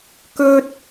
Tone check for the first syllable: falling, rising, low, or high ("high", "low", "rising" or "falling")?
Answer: high